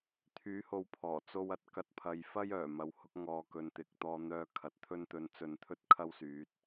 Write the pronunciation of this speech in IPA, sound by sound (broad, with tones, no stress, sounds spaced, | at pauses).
t̪ʰ yː˨˥ h o˨˧ w pʰ ɔː˨˩ t͡s o˧ w ɐ˨˥ t̚ k ɐ˧ t̚ pʰ ɐ˨˧ j f ɐ˥ j œː˨˩ m ɐ˨˧ w h ʊ˨˥ k̚ ŋ ɔː˨˧ k ɵ˧ n t̪ ɪ˨˥ k̚ t̪ ɔː˧ n̪ œː˧ kʰ ɐ˨ t̚ t̪ʰ ɵ˧ n t̪ ɵ˨ n t͡s ɵ˧ n t̪ʰ ɵ˥ t̚ kʰ ɐ˥ w s yː˨˥ t̚